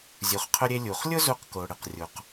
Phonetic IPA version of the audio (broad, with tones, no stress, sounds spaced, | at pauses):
zʲ u˩ χ qʰ ʊ˧ ɾʲ e˧ lʲ u˩ χ lʲ ʊ˥ z u˧ q k o˩ ɽ ɪ˩ q rʲ u˩ q